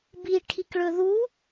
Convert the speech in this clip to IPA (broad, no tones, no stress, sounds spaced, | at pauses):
b i ʈʰ i k ɭ ɵ ð u